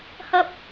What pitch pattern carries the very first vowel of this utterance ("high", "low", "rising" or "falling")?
high